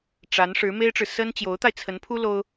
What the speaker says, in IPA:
ʈ͡ʂ a˧˥ n ʂ ɻ̩˧˥ m e˥ ɪ̯ ʈ͡ʂ ɻ̩˨ s ə˥ n t͡ɕ j o˧˥ ʊ̯ t̪ a˧ ɪ̯ t͡sʰ ə˧˥ n pʰ u˥ l o˥ ʊ̯

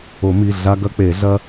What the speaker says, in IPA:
o˨˩˦ m i˩˧˩ ɮ a˦ ɡ ɐ˦ k͡p e˨˩˦ ɮ ɐ˦

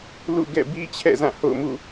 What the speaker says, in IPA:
l ṵ˦˨ ɡ ɛ̰˦˨ b i˦ t͡ɕʰ ɛ̰˦˨ z ã˦˨ h o̰˦˨ ʊ̯ m ṵ˦˨

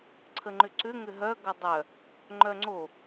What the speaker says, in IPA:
ǀʰ ə ŋ͡ǃ ʏ ǀ ʏ ŋ ʏ ɦ œ ɡ ʌ dˤ œ | ŋ͡ǃ œ ŋ͡ǀ o

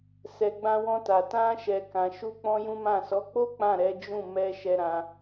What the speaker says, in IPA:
s ɛ˨ ɡ͡b ã˧ w ɔ̃˧ t a˨ t ã˧ ʃ ɛ˨ k ã˨ ʃ u˧ k͡p ɔ̃˦ j ũ˦ m ã˦˨ s ɔ˨˦ k͡p o˦ k͡p ã˦˨ ɾ ɛ˨˦ d͡ʒ ũ˦˨ m ɛ˧ ʃ ɛ˧ ɾ ã˧

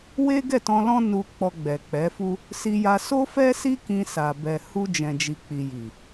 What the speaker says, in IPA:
w e˦ ɡ ɛ˦˨ t ɔ̃˧ l ɔ̃˦ n u˧ k͡p ɔ˧ ɡ͡b ɛ˨ k͡p ɛ˨˦ f u˦ | s i˧ j a˧ s o˦ f ɛ˦ s i˦ k ĩ˧ s a˨ b ɛ˨ h u˧ d͡ʒ ɛ̃˨ d͡ʒ i˨ k͡p i˨ j i˨

